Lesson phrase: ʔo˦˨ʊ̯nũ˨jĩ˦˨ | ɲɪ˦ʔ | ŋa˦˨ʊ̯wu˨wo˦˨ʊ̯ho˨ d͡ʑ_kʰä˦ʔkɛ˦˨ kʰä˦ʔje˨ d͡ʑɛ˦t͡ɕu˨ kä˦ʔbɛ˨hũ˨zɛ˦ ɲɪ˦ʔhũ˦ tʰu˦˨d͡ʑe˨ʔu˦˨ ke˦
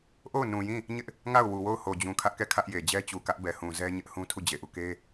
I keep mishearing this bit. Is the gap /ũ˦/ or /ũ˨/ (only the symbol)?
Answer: ũ˨